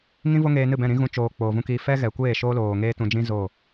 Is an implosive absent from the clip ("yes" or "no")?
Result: yes